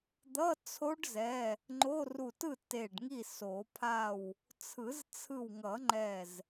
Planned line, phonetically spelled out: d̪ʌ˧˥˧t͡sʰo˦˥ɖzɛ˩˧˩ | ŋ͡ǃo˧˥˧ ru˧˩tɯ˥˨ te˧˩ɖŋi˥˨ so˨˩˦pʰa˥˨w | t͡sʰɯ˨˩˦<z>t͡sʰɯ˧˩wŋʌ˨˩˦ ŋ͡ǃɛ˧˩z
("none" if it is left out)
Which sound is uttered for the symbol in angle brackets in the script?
z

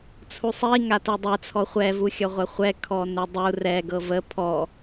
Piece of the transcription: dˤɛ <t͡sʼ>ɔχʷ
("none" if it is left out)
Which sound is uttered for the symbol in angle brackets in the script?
t͡sʰ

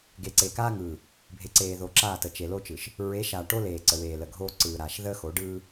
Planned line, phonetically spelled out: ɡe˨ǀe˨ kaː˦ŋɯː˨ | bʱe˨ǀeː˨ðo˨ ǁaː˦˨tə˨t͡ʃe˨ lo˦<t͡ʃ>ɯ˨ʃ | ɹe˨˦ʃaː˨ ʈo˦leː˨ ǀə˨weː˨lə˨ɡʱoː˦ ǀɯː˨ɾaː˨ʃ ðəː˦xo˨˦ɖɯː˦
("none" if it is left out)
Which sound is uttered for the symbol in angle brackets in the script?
t͡ʃ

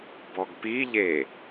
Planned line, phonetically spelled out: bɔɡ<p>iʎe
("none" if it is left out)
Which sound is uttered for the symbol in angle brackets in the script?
p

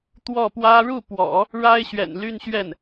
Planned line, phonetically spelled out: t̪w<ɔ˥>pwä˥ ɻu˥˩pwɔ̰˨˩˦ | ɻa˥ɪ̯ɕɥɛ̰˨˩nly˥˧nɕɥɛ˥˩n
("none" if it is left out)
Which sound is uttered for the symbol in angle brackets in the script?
ɔ˥˩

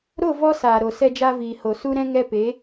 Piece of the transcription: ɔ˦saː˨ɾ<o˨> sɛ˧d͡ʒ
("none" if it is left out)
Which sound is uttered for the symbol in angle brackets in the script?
o˨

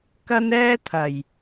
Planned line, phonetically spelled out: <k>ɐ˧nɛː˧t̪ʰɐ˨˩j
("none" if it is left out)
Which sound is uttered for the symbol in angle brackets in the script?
k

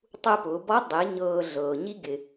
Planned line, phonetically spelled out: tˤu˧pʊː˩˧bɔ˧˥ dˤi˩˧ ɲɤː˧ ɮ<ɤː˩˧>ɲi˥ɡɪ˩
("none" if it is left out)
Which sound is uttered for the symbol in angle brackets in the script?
ɤː˩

